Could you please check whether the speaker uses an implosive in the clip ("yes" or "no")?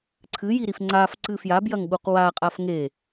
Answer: yes